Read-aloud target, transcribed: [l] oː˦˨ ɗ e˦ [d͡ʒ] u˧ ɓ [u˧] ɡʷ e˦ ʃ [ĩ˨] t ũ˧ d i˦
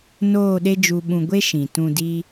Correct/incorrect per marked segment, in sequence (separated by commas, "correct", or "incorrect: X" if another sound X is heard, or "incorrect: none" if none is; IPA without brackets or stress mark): incorrect: n, correct, incorrect: ũ˧, correct